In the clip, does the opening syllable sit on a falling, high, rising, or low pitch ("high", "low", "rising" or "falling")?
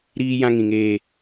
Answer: high